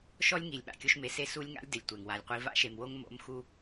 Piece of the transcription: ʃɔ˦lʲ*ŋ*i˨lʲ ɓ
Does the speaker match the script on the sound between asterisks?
yes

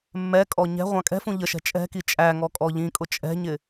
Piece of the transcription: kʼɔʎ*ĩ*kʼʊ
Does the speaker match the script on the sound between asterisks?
yes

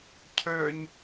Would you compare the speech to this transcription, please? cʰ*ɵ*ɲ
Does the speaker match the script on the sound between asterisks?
no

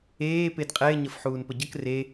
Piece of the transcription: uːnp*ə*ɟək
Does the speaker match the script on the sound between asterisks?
yes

